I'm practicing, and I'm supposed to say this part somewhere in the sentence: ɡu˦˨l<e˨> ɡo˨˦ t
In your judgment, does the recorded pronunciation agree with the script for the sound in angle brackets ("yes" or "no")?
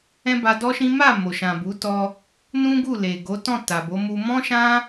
yes